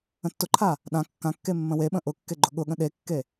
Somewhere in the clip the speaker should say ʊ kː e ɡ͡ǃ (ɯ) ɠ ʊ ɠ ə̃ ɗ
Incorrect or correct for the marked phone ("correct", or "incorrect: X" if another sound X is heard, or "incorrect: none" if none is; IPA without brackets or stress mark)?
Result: incorrect: ʊ